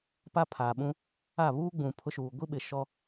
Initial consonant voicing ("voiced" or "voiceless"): voiceless